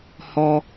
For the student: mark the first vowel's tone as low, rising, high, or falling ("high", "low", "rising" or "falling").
high